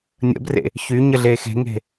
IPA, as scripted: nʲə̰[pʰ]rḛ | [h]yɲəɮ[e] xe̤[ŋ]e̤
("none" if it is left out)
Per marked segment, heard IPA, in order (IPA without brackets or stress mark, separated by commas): b, ç, e, ŋ